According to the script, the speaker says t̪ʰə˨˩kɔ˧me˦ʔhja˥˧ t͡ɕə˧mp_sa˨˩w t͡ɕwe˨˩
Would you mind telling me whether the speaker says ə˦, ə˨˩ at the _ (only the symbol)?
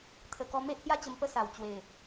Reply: ə˦